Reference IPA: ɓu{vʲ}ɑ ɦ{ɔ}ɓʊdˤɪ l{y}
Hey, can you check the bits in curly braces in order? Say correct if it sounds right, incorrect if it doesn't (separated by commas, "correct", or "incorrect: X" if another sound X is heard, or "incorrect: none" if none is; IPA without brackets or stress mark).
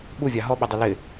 correct, correct, incorrect: ɪ